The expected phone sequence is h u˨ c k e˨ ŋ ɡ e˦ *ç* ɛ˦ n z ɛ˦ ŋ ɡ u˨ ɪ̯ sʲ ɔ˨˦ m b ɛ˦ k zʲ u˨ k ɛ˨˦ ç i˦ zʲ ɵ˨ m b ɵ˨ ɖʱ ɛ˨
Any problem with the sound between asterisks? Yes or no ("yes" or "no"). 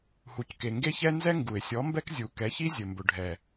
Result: no